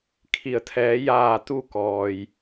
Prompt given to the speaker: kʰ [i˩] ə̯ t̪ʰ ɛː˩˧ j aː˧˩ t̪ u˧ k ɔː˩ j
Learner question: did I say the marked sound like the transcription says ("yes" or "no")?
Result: yes